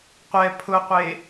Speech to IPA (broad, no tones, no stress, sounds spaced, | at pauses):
qʷ ɛ pʰ ʊ qʷ e